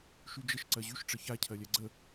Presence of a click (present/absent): present